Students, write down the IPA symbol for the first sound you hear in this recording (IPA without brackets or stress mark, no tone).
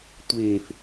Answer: tʷ